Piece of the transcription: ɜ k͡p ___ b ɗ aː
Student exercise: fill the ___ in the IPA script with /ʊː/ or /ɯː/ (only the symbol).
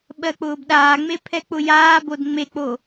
ʊː